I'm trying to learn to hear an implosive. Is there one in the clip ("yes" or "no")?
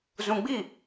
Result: no